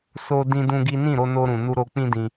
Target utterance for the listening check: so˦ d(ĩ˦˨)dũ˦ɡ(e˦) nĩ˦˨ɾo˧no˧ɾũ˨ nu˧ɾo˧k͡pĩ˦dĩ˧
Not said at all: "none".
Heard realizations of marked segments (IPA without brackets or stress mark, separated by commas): ĩ˦, i˦